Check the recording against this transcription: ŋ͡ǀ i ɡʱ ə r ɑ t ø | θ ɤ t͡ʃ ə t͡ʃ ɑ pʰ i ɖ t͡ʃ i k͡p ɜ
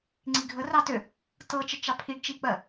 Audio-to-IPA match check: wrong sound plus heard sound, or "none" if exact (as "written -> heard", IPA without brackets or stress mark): θ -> t